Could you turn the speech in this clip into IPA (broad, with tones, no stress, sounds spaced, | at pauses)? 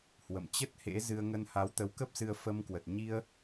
h w ə̰˧˨ m t͡ɕ ə˦˥ t̚ h ḛ˧˥ z ɨ˧ ə̯ ŋ ə˧ n h a˨˦ w t̪ ə˨˦ w k ə˦˥ p̚ s ɨ˧ ə̯ f ə˧ m k w ə˨˩ t̚ ɲ i˧ ə̯